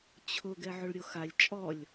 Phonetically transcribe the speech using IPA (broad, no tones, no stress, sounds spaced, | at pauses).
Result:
t͡ɕʰ ʊ ɡ ɛ ʕ ʊ ɭ ɾʲ o x a lʲ t͡ʃʼ ɔ lʲ